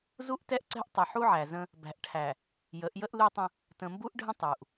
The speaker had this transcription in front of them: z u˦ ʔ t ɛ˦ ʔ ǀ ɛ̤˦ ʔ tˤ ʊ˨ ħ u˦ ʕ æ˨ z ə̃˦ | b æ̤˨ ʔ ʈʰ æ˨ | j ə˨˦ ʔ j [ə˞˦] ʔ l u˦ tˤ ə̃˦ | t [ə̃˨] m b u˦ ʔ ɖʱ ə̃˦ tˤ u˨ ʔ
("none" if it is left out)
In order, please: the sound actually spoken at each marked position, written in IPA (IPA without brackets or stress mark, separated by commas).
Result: ə˦, ə̃˨